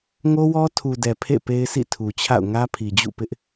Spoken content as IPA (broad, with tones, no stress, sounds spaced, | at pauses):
ŋ o˦ w ɔ˦ tʰ u˨ d ɛ˨ pʰ ḛ˦˨ p e˦ ɪ̯ sʰ ḭ˦˨ tʰ u˨ t͡ɕʰ a̰˦˨ ʊ̯ ŋ ä˦ pʰ i˨ d͡ʑ ṵ˦˨ p ɪ˦ ʔ